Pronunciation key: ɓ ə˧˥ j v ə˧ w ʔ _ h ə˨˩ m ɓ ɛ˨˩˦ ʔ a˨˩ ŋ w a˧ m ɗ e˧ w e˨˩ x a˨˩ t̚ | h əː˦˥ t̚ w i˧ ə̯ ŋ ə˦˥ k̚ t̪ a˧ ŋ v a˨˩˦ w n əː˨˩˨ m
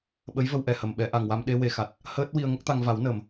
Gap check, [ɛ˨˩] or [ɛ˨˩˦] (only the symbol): ɛ˨˩